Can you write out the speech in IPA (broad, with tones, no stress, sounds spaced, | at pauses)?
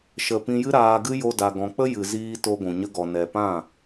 ʃ ə˨ p ĩ˧ j ɨ˦ ɾ aː˧ ɡ ɨ˦ j o˧ d a˨ ɡ ɔ̃˨ k͡p ə˦ j ɨ˨ z iː˧ t o˧ ɡʷ ũ˨ ɲ ə˧ ɡ ɔ˨ n ɛ˨ p ã˦˨